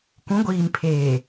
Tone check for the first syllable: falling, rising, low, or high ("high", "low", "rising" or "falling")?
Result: rising